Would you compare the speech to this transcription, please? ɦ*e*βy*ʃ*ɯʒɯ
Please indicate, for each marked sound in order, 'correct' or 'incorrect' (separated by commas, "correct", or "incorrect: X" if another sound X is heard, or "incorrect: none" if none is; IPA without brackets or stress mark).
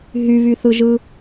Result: incorrect: y, incorrect: θ